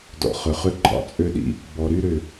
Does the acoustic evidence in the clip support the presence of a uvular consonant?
yes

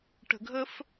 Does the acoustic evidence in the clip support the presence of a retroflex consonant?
yes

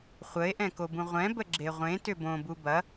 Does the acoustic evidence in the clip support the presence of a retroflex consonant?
no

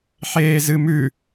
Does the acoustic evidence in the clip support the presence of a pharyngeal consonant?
yes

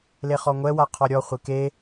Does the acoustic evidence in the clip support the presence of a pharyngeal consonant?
no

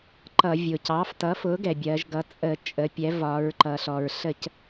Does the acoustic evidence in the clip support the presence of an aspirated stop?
no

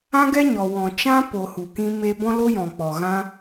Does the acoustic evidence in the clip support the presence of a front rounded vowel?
no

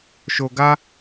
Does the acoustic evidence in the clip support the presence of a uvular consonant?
no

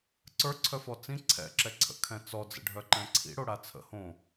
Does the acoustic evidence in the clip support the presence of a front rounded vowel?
yes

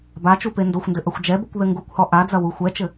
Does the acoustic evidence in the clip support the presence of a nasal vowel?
no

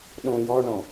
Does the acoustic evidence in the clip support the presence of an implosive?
yes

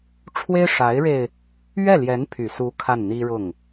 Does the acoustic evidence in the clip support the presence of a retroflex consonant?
yes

